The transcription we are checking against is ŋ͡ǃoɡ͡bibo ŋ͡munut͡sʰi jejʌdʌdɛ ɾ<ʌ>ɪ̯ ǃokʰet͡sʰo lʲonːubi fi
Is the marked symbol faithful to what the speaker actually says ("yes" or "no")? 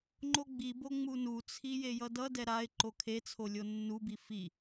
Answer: no